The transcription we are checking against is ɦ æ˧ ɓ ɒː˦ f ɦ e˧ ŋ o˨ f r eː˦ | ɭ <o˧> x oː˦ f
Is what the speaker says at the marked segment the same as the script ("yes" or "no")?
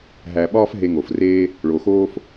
no